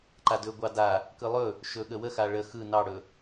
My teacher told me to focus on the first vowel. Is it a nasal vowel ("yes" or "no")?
no